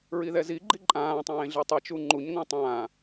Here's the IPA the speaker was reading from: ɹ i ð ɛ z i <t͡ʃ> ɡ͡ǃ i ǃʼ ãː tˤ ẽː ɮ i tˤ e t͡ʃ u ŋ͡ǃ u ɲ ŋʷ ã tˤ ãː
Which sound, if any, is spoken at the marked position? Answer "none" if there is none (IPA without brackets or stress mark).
none